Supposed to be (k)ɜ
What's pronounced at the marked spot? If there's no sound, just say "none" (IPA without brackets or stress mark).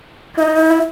k